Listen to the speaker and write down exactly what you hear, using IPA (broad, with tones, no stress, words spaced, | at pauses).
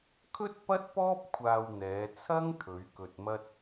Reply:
kʰɵ˥t̚pɐ˥t̚pɔː˥p̚ kʷʰaː˧w n̪ɛː˨˧t͡sʰɐ˥ŋ t̪ʰɵ˨˧ɥkɵ˧t̚mɐ˥t̚